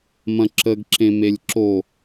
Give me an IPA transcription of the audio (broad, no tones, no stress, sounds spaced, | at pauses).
m ɐ̃ ǁ ə ɡ ǁ ẽ m e lʲ ǁ o